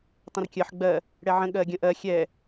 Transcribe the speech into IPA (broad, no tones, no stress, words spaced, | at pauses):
tˤə̃rkʲɜħ ɡ͡bɜ | ɽɛʕə̃ ɠɜɡʲə̃ʔɜ xʲɛ